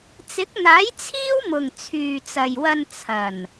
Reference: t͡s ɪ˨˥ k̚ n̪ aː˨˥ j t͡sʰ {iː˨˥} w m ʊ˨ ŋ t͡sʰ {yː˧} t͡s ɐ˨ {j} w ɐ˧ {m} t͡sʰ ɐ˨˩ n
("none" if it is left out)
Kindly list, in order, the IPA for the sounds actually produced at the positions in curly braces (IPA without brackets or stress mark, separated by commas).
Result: iː˥, yː˨, j, n